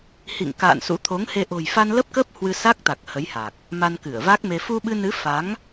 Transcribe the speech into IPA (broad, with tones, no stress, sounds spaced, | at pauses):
h ḭ˧˨ ŋ k a̰ː˧˨ n s ṵ˧˥ t̪ʰ o˨˦ ŋ h e˧ ʔ o̤˨˩ j f a˧ n l ə˦˥ p̚ k ə˦˥ p̚ h w ɨ˧ s a˦˥ k̚ t̪ a˨˩ k̚ h ə˨˦ j h a˨˩ k̚ | m a˧ n k ɨ˧˩ ə̯ v a˦˥ k̚ m e˧ f u˧ ɓ ɨ˧ n ɨ˨˦ f a˨˦ ŋ